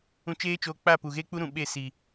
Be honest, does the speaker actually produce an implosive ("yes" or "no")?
yes